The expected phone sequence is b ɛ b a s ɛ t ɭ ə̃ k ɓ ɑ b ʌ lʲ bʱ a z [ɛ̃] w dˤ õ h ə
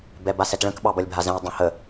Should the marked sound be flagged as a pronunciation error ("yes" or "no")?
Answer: no